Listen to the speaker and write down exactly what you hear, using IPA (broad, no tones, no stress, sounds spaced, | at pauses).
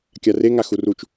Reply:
kʲ a r e ŋ a x u r u t͡ʃ